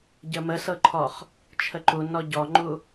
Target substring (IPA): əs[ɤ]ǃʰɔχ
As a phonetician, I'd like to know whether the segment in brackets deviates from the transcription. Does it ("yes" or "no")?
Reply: no